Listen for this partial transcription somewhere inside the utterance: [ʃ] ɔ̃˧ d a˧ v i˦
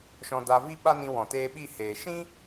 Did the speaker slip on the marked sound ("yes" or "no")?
no